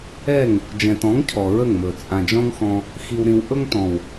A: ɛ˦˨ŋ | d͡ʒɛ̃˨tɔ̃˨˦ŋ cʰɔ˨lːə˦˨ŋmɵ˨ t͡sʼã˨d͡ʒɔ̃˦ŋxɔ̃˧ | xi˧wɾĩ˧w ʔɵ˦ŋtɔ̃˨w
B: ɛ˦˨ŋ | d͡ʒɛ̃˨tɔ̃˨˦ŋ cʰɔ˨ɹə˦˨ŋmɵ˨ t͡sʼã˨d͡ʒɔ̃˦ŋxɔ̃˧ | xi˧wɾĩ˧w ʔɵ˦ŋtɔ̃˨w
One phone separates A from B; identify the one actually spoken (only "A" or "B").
B